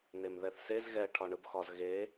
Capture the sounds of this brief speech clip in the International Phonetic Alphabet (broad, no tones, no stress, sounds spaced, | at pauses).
n̪ e m ð ɛ θ s e z ɣ ɛ ʈʰ ɒ ɳ ɯ b x ɒ z ɣ e